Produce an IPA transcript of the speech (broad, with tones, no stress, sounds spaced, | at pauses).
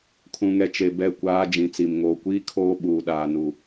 kʰ ũ˨ ŋ ɛ˨ t͡ʃ e˨ b ɛ˦˨ kʷ aː˦ d͡ʒ ĩ˨ t͡s i˨ m ŋ oː˨ kʷ iː˦ kʰ oː˦ ɓ uː˨ ɗ aː˨ n u˨